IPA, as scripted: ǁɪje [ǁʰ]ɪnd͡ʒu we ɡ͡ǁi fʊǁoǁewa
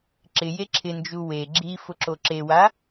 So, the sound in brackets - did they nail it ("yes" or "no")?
yes